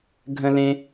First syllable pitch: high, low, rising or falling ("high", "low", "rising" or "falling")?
high